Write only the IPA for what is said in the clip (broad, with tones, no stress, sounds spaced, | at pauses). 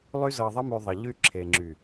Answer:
lˠ y˦ z ɤ˧ ðˤ ə˦ m y˧ ðˤ ə˨ ʎ y˧ ǁʰ e˨ ŋ͡ǁ y˨